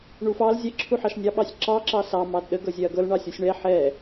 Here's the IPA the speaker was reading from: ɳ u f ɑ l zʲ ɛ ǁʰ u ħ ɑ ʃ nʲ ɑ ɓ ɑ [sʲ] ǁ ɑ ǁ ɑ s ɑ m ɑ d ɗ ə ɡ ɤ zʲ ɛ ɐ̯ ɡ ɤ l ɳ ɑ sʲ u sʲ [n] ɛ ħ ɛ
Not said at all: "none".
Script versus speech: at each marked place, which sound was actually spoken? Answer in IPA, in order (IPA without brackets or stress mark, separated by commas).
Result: sʲ, ɳ